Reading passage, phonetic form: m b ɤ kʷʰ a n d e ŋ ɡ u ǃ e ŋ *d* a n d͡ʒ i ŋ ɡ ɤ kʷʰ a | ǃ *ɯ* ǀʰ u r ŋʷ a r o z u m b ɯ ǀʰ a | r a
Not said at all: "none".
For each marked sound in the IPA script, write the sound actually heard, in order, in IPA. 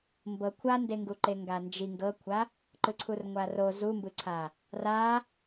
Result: ɡ, ɯ

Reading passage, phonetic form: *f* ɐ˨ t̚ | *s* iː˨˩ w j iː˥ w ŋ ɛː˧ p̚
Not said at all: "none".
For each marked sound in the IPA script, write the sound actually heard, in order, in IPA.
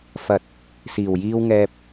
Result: f, s

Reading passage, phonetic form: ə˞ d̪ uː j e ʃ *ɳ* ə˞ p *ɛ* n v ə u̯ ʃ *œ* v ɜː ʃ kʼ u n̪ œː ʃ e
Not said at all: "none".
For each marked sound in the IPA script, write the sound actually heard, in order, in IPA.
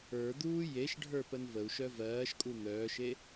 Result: ɖʱ, ə, œ

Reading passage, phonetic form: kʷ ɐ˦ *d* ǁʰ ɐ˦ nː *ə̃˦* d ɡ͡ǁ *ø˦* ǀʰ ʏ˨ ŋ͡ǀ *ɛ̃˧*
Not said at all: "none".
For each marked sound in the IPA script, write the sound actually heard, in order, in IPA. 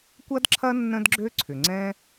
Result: d, ə̃˦, ø˦, ɛ̃˦

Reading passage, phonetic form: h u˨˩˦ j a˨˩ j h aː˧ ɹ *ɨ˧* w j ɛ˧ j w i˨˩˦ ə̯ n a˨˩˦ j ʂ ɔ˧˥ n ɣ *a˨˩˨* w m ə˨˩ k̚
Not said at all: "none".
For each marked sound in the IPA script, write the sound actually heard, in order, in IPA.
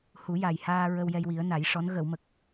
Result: ə˧, ə˨˩˨

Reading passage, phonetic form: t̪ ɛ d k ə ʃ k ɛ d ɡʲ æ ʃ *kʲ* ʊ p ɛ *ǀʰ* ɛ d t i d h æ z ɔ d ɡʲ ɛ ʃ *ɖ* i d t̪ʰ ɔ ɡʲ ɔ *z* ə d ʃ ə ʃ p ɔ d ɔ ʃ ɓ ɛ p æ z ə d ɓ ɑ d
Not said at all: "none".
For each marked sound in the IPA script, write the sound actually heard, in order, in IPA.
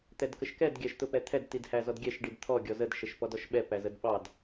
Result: t̪, t̪ʰ, ɖ, z

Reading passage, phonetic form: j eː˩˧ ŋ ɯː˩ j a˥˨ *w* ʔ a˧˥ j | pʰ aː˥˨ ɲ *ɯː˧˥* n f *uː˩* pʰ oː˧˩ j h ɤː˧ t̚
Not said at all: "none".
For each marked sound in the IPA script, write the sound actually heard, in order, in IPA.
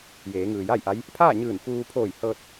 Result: j, ɯː˧˩, uː˧

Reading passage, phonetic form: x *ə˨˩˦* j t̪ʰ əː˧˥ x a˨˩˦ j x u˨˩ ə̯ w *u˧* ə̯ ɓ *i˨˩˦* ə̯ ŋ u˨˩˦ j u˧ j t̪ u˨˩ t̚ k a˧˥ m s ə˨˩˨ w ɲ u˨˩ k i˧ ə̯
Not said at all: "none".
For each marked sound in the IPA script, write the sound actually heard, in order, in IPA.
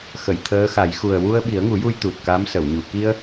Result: ə˨˩˨, u˧, i˨˩˦

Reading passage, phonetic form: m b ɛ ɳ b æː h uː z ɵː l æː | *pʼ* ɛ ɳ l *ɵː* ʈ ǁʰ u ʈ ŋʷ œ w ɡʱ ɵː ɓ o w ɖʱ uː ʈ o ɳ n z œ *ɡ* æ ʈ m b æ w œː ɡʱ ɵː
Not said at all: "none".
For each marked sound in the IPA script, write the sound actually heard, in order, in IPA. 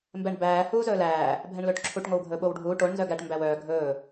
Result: bʱ, ɵː, ɡ

